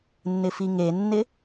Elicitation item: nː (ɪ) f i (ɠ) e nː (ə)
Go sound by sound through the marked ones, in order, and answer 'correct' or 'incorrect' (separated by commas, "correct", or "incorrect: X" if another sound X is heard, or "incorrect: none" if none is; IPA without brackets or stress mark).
correct, incorrect: ŋ, incorrect: ɪ